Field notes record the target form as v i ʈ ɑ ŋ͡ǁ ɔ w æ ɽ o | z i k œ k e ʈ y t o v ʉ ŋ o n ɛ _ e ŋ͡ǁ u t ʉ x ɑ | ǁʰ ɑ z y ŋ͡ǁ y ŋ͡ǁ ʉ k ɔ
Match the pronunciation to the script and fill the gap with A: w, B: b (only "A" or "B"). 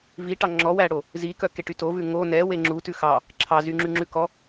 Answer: A